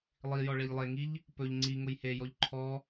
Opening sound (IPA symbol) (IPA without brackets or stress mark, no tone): lˠ